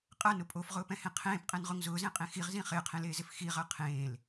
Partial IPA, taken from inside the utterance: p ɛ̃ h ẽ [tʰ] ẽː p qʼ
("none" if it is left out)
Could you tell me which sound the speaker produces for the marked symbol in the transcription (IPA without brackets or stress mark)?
qʰ